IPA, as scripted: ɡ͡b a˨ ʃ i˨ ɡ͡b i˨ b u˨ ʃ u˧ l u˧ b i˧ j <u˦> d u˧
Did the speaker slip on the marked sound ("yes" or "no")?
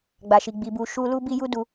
yes